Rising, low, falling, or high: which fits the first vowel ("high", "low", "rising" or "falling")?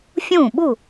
falling